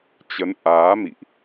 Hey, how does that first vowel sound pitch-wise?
rising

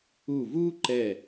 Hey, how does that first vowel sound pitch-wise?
falling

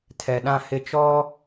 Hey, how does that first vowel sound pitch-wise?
low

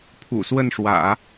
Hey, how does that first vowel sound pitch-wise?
low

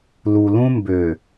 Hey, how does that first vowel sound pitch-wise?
low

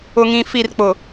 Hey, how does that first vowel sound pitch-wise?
low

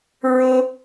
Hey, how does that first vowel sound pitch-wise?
high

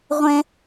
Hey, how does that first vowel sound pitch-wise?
high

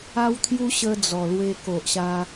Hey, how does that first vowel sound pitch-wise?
high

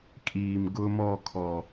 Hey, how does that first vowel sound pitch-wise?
low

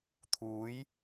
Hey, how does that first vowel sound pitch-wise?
rising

